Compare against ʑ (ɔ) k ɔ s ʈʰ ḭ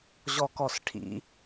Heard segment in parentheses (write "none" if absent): ɔ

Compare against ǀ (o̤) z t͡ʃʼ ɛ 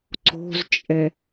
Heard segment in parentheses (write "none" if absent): o̤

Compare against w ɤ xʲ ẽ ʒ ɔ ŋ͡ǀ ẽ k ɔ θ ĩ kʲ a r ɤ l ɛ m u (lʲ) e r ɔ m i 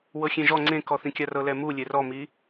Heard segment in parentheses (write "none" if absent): lʲ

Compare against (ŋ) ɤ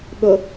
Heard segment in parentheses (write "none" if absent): ɠ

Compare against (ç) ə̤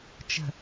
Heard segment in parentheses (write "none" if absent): t͡ʃ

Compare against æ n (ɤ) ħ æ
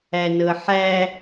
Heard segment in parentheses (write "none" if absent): ɤ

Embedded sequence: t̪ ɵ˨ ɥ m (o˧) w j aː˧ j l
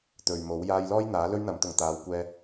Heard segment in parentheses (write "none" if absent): o˨˥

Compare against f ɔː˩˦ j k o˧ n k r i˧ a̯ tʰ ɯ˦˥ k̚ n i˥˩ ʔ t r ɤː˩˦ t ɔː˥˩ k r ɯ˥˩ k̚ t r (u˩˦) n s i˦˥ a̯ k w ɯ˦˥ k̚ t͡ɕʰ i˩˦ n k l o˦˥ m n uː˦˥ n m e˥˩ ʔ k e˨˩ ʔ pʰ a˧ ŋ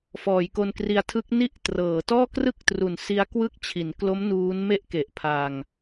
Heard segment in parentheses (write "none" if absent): u˩˦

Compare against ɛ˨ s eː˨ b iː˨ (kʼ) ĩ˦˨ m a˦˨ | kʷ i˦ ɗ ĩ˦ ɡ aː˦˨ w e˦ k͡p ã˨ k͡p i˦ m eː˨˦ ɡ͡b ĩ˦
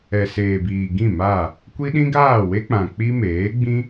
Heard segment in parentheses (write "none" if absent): ɡ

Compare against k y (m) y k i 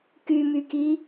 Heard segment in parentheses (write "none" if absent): m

